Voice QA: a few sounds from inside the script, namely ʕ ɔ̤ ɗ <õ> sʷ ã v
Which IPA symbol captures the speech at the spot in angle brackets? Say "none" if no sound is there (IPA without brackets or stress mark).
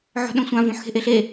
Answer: õ